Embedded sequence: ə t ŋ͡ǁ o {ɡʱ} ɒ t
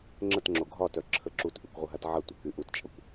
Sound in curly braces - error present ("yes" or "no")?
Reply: no